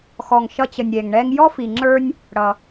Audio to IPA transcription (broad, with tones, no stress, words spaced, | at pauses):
xɔ˨ŋʃʌ˦t͡ɕə˨nʲ ɾʲɛ˩ŋɳɛ˦ŋ jɔ˥fi˨ŋ͡ǁə˞˦nʲ | ɽʌ˩